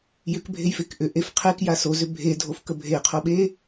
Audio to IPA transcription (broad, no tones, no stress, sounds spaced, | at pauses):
j ʏ k bʱ e j f e k ʔ ʏ ʔ e f qʰ e k j a s o z ʏ bʱ e dʱ o f k ə bʱ e qʰ o ɓ e